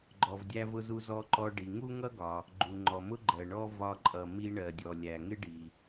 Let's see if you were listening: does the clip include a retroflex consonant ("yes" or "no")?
yes